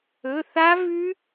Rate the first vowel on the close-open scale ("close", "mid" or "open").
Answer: mid